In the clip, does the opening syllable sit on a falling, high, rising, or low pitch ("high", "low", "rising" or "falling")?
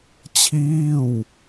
falling